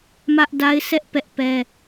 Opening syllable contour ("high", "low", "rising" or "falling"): high